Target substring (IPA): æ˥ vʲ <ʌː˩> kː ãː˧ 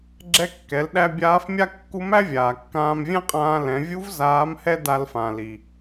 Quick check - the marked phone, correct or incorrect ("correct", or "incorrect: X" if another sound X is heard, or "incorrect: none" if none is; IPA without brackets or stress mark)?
incorrect: aː˩